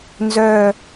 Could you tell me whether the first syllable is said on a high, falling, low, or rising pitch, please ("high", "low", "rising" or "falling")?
low